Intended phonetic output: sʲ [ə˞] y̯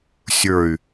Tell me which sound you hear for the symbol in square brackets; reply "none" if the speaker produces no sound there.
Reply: ə˞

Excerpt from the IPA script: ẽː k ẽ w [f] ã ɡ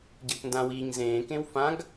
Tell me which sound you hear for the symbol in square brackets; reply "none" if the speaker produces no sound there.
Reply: f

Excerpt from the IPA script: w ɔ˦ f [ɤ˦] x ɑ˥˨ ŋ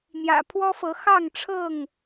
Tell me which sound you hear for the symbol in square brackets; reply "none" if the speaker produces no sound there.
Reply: ɤ˨˦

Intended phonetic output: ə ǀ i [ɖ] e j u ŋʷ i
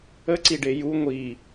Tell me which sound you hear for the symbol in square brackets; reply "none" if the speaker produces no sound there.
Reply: ɖ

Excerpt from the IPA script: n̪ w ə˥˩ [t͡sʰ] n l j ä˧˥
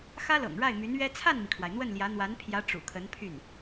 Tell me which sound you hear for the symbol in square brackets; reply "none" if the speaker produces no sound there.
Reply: none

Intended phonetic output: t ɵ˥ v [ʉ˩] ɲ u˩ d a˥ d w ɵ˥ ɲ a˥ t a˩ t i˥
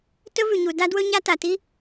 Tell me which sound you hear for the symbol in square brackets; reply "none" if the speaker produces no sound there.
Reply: ʉ˩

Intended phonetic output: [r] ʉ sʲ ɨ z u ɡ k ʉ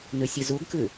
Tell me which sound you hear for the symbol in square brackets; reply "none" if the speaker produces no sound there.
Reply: n̪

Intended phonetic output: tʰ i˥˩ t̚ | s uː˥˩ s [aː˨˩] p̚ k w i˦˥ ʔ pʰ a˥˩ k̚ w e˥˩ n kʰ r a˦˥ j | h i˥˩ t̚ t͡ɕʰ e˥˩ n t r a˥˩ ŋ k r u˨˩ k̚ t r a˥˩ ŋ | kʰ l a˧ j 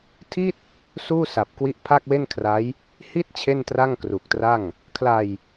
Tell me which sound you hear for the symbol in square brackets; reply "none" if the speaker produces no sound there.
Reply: a˨˩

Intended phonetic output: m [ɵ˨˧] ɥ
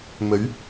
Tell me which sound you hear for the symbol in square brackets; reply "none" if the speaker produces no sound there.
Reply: ɵ˨˧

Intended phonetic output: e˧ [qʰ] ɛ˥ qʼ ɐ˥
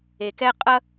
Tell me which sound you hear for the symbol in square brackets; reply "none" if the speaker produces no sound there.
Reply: k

